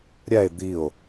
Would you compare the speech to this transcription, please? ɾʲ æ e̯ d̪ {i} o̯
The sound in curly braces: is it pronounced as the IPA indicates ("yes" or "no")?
yes